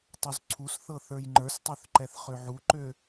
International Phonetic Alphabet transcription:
tˤuzǀʰusθɤ θə˞jŋ͡ǃə˞stˤøθ ǃɛθχøʕuǃø

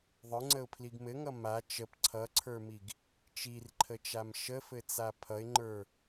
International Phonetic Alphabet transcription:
ðˤə˞ŋ͡ǀəʊ̯pʰliɡ mɘŋʌ ma t͡ʃəp ǀʰʌǀʰə˞miɡ | t͡ʃirǃʰət͡ʃam ʃəfɘt͡sa pʰʌɪ̯ŋ͡ǃə˞

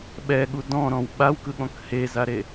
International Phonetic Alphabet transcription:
ɓɛɠu dɔ̃ɾɔ̃w ɓawkɯɠɔ̃k hezaɾe

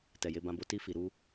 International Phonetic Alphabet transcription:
tɛ˨je˨˦bã˧bo˧ ti˧fi˨ɾu˧

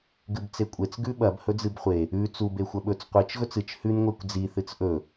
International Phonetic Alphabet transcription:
ɡɨbt͡sekʷʼet͡s ɡʉɓɐb hɵd͡zɨbχʷe | ʉ t͡sub exʷɐɓɵt͡s qʷɨt͡ʃ ɣɵt͡sɨt͡ʃ hʉn ŋʷekʷd͡zi θɨt͡sʔɵ

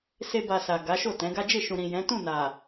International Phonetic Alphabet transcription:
se˦ba˧sa˨ ɡa˨˦ʃo˦˨tɛ̃˨˦ɡa˦ d͡ʒe˦˨ ʃũ˨ɾĩ˨ jɛ̃˨˦tũ˦˨na˨

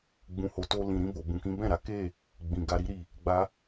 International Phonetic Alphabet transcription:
ɡ͡bũ˨ho˨to˧ lĩ˨ ɾĩ˧bo˨ bũ˨kĩ˨˦bɛ̃˦˨ɾa˨˦ ke˦˨ | ɡ͡bĩ˨ɡa˧ɾi˦ɾi˦˨ | ɡ͡ba˧

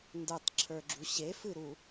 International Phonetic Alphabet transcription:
ndə˞tˤǁʰə˞ɡ͡ǁu ɕefɨɾu

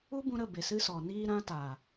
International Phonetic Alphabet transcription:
u˦bũ˧ɾə˦˨ be˨sɨ˦sɔ˨ niː˧ ɾã˦taː˨

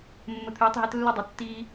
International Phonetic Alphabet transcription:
mːə˧t̪ʰʏː˧˥tˤɦɘ˧˥t lːʏ˥dˤʌ˧ tːiː˧

